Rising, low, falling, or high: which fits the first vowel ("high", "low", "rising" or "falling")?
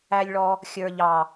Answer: high